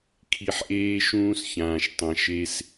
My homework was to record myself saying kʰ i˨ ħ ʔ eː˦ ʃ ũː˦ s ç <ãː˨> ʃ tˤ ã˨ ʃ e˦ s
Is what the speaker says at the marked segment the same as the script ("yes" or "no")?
yes